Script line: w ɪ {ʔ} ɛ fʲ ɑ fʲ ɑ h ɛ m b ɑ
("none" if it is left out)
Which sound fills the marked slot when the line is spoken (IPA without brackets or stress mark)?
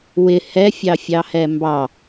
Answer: h